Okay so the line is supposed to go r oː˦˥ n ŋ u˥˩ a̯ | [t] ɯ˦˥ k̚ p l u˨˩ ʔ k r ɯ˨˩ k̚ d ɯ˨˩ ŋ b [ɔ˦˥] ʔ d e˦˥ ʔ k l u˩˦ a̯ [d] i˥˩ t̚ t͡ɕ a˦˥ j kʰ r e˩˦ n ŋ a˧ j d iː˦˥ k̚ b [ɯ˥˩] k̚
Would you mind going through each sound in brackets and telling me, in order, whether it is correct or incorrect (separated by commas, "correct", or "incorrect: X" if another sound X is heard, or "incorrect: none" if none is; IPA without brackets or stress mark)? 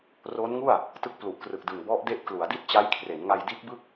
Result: correct, correct, correct, correct